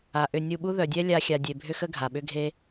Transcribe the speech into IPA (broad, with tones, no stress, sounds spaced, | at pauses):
a˨ ʔ ʏ˧ nʲ u˧ ɓ u˦ ð œ˨ dʲ ɛ˦ lʲ a˧ xʲ a˧ dʲ e˧ bʱ ʏ˦ x ə˦ ɡʱ a˨ ɓ ʏ˦ ɡʱ e˦